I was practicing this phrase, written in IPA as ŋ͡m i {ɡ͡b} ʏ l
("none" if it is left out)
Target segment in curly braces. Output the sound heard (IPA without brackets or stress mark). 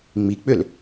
k͡p